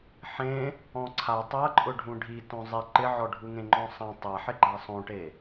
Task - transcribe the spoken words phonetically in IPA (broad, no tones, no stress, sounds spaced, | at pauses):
ħ ẽ | ɔ̃ ǀʰ a tˤ a ǃʼ ʊ ɖʱ ũ ɖʱ i t õ zˤ i ǃ ɪ ʕ ɔ ɖʱ u ŋ ẽ ŋ͡ǃ ɔ̃ sˤ ã tˤ a ħ ɪ ɡ͡ǃ a sˤ õ ʈ e